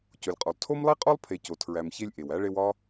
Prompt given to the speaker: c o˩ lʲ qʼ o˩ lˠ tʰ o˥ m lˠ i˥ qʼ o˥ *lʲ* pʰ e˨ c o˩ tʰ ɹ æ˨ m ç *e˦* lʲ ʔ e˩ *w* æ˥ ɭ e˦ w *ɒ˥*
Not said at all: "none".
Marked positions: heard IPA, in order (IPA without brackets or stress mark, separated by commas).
lˠ, e˦, w, ɒ˥